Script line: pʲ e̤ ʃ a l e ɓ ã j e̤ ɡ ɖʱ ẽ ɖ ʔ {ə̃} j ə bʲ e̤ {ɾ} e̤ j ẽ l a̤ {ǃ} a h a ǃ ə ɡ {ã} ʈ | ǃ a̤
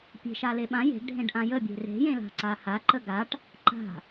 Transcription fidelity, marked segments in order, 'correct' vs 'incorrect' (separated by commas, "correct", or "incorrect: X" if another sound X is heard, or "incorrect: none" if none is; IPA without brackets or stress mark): incorrect: ã, incorrect: r, incorrect: ǀ, incorrect: a